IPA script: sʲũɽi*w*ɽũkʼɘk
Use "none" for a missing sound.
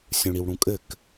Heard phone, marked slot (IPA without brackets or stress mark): w